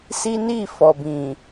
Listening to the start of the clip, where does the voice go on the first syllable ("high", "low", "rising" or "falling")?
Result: high